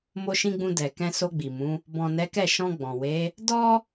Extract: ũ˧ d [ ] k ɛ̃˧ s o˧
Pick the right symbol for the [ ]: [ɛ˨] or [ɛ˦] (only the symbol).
ɛ˨